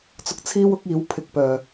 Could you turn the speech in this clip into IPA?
t͡s ʊ˧ k̚ t͡sʰ iː˥ w ʊ˥ k̚ iː˨˥ w pʰ ɪ˧ k̚ p œː˨

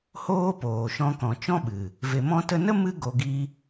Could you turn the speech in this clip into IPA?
h oː˦ p oː˨ ʃ ɔ̃˧ k ɔ̃˨ t͡ʃ ɔ̃˦ ɓ ɨ˨ | v e˨ m ɔ̃˧ t ə˧ n ə˦ m ɨ˦ ɡ o˧ ɡ i˦

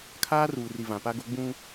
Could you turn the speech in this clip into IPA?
kʰ aː˦ r uː˨ r i˨ v ã˨ p a˦ ɡ o˦ ɡ͡b ũ˦

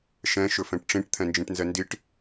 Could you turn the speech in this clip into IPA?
ʃ ɛ̃ ʃ ɵ f ɛ̃ ʈ ʈ͡ʂ ĩ ʈ t̪ʰ ɛ̃ n d͡ʒ ĩ ʈ n z ɛ n d i ʈ

